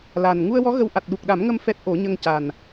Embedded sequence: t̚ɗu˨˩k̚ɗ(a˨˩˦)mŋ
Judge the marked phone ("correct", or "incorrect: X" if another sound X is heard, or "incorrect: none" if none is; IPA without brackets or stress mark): correct